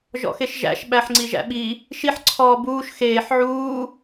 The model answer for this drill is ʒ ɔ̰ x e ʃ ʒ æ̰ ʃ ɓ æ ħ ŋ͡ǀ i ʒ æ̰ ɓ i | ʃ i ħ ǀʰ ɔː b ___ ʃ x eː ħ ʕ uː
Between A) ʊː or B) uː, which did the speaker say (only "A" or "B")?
B